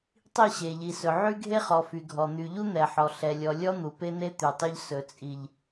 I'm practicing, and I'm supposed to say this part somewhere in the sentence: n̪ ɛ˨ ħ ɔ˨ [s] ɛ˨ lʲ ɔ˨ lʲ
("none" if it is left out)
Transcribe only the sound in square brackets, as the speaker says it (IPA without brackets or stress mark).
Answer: ɬ